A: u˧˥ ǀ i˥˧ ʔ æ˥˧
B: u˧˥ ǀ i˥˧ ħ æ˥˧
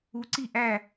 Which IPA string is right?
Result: A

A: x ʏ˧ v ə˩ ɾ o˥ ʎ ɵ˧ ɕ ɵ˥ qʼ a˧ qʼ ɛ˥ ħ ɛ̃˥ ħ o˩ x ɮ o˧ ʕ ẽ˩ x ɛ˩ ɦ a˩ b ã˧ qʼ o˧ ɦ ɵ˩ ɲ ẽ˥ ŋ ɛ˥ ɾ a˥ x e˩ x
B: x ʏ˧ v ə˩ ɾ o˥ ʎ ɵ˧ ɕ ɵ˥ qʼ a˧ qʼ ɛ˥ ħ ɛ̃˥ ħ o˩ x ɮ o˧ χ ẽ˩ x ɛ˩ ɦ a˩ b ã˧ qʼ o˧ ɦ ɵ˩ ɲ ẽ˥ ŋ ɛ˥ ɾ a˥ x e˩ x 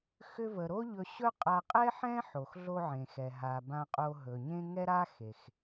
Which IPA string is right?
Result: A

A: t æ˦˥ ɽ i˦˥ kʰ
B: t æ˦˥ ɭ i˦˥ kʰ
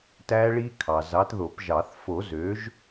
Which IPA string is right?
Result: B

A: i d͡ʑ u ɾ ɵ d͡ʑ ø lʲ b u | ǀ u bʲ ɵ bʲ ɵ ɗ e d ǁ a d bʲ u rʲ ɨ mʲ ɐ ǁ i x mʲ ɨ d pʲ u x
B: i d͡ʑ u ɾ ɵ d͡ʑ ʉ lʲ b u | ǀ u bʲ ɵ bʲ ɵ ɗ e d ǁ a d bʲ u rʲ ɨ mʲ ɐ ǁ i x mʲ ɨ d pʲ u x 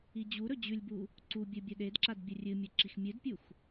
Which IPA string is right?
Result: B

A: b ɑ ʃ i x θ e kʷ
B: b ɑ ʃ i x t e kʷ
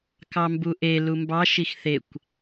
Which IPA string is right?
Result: A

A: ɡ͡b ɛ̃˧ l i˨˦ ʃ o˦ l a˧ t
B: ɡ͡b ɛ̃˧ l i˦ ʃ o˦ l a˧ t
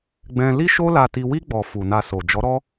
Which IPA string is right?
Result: B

